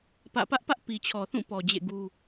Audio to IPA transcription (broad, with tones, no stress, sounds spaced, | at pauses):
p ä̰˦˨ p ä˦ ʔ p ä˦ ʔ p i˨ t͡ɕʰ ɔ˨ θ ũ˦˨ p ɔ˨ d͡ʑ ḛ˦˨ ɡ u˦